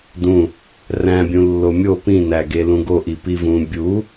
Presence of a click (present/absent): absent